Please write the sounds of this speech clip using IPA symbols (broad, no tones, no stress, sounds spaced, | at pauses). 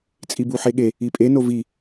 t͡sʼ i b u ħ e ɠ e | i pʼ e n o v i